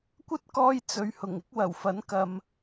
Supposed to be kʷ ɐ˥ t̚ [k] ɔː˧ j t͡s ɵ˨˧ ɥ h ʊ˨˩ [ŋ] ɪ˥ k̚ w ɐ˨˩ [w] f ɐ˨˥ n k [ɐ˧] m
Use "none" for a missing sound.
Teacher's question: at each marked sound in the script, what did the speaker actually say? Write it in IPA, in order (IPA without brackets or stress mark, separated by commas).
k, ŋ, w, ɐ˨